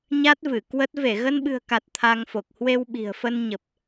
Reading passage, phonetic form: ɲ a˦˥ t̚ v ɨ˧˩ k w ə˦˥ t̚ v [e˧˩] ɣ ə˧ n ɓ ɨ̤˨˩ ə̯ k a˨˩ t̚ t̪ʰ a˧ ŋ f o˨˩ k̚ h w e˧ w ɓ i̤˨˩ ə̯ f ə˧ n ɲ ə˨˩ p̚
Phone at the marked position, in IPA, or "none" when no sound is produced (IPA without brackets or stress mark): e˧˩